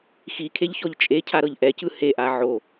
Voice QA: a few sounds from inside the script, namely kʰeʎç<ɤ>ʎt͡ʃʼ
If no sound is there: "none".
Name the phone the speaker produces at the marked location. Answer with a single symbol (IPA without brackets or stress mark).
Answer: ɔ